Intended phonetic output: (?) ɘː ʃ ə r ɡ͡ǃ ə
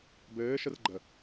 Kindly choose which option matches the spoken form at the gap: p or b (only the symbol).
b